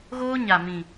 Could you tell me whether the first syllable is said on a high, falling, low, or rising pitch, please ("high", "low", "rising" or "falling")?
high